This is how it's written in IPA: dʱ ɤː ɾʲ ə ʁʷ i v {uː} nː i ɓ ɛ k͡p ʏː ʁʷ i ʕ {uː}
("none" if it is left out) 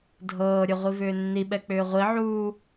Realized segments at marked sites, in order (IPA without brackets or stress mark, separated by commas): ʏː, uː